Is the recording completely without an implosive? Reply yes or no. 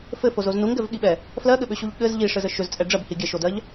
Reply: no